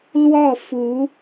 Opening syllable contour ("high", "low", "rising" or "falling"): falling